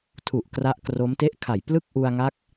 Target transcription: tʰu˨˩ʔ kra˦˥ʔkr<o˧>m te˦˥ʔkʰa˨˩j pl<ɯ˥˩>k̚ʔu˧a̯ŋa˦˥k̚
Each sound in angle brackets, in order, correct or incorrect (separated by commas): incorrect, correct